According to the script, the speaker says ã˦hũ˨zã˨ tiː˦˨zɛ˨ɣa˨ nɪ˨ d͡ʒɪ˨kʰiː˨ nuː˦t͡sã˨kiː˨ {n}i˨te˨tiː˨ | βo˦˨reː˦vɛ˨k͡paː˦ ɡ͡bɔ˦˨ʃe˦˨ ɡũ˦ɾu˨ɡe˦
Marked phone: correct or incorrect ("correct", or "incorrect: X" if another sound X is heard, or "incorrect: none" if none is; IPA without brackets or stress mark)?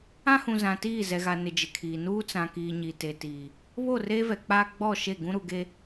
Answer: incorrect: ɲ